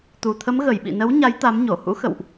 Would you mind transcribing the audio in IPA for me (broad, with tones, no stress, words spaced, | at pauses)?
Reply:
t̪u˨˩t̪ʰə˨˦mɣə˧˩j ɓḭ˧˨nə˨˦wɲa˨˦j t̪a˨˦mɲo˧˩ hṵ˧˥xə̰˧˨wʔ